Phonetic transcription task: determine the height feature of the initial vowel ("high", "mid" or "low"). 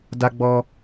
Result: low